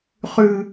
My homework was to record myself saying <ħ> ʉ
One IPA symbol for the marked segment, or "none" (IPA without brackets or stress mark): χ